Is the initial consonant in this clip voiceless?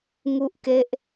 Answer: no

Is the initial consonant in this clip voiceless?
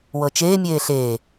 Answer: no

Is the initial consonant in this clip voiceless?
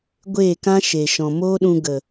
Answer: no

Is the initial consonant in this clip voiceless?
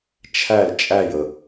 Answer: yes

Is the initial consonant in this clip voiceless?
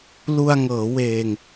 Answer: no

